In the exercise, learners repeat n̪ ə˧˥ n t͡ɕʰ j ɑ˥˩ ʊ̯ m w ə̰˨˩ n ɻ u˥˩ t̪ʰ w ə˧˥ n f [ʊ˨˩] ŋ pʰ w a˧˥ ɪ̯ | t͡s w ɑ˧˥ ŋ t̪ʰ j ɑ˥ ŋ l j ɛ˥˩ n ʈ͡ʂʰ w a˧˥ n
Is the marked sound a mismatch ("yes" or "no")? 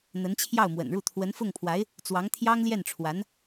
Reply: yes